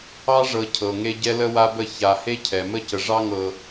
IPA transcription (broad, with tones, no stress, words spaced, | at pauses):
ɑ˦ʐɤ˨ cʰɤ˨ŋe˦ ɟɛ˦lə˦wa˦bə˦˨ ça˨he˦cʰɛ˨mə˦ cə˨ʐɑ˦ŋɤ˨